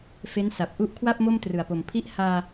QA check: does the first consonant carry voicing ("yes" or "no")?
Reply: no